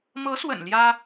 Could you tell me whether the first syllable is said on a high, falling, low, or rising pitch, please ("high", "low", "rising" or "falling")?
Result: rising